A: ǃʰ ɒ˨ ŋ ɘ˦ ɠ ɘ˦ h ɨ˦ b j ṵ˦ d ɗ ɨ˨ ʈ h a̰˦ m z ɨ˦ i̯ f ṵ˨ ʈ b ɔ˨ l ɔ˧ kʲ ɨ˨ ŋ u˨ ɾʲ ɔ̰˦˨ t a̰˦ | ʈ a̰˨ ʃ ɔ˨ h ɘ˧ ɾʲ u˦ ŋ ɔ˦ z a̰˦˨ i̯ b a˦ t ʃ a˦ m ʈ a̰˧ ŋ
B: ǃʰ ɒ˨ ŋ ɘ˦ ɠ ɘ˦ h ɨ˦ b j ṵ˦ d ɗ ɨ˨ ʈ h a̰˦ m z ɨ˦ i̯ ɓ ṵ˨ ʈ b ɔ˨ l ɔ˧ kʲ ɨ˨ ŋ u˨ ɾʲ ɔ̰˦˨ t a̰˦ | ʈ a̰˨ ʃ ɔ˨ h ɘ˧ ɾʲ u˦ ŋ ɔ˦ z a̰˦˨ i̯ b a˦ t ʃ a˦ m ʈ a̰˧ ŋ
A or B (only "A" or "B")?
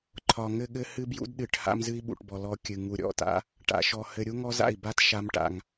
B